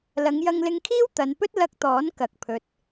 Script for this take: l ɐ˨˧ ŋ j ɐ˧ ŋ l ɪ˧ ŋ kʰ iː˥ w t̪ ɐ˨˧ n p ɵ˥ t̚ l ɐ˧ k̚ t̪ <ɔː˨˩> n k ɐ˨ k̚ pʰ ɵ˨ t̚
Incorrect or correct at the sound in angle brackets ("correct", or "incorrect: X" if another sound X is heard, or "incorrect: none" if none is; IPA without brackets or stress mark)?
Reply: incorrect: ɔː˨˥